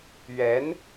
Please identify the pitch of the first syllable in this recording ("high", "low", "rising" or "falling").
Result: rising